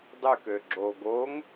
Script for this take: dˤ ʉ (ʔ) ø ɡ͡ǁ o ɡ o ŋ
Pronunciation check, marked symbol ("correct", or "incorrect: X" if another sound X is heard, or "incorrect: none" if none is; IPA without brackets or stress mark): incorrect: k